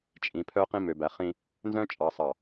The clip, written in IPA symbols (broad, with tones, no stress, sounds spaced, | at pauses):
t͡ʃʼ ĩ˨ pʰ œ˦ q ĩ˦ m ø˨ b æ˨ χ ĩ˦ | n z œ̃˦ t͡ʃʼ ɑ˨ sˤ ɑ˨